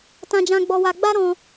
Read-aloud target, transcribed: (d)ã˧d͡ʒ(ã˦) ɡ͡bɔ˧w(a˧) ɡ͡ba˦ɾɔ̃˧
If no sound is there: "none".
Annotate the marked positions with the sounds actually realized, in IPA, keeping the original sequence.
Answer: t, ã˧, a˧

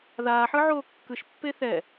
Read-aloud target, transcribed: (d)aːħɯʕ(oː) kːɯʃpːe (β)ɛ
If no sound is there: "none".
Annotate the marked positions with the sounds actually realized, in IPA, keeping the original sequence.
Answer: ð, oː, θ

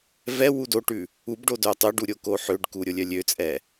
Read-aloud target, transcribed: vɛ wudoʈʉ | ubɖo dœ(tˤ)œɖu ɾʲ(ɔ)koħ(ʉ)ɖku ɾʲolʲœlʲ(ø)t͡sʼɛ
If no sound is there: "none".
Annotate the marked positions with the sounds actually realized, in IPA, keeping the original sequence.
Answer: tˤ, o, ø, ø

